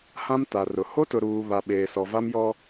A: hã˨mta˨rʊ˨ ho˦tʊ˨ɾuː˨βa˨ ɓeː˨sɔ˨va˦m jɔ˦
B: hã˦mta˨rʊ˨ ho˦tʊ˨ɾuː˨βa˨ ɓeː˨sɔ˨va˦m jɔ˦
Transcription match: B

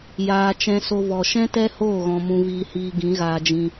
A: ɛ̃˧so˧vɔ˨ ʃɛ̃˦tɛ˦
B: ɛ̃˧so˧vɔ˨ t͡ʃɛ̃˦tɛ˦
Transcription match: A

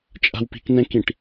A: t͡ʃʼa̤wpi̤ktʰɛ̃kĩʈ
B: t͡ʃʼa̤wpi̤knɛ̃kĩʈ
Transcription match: B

